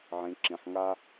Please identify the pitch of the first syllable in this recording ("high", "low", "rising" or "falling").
low